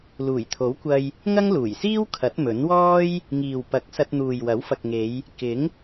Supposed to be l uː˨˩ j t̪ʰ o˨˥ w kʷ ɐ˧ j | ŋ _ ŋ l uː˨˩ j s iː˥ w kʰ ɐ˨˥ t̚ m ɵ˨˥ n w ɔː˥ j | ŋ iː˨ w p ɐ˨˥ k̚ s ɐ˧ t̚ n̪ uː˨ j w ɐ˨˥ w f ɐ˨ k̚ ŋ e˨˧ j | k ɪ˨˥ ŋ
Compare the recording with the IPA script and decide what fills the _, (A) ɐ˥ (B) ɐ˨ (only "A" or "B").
A